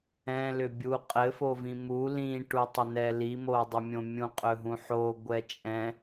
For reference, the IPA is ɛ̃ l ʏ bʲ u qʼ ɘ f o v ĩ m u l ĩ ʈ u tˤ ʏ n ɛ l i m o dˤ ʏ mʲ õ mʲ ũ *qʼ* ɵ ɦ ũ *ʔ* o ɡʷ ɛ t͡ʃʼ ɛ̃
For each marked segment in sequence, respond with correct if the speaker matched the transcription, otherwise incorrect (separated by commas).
correct, incorrect